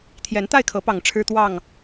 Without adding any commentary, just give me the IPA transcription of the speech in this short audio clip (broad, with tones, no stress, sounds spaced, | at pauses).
t̪ʰ j ɛ˨˦ n t̪ a˥˨ ɪ̯ kʰ ɤ˨˦ p ɑ˨˩ ŋ ʈ͡ʂʰ ɻ̩˦ t̪ w ɑ˥˨ ŋ